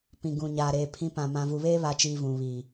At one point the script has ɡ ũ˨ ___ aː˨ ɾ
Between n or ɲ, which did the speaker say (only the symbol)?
ɲ